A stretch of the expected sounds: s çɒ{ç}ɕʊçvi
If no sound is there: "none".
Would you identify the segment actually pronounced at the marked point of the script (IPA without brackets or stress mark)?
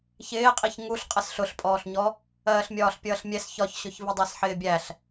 ç